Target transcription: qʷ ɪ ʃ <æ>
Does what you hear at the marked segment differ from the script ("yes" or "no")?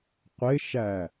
no